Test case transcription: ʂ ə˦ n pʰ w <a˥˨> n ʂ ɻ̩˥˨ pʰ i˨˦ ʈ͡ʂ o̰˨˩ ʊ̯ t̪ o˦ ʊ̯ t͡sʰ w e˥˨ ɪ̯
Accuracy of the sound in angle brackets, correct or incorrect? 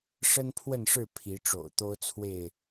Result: incorrect